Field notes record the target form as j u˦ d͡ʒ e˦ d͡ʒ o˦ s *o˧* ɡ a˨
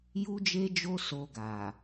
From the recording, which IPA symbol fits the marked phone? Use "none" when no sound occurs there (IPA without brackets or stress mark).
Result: o˧